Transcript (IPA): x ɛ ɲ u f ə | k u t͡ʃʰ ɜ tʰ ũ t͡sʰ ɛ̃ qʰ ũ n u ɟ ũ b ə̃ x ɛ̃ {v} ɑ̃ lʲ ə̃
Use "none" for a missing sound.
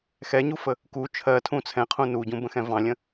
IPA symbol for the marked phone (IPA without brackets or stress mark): v